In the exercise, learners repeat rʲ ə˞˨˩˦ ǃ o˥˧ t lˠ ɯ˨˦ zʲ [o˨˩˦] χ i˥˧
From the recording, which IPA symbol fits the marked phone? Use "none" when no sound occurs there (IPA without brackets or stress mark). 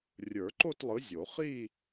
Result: o˨˩˦